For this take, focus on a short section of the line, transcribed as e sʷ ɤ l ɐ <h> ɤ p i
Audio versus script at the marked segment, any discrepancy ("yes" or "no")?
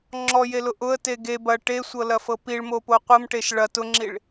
yes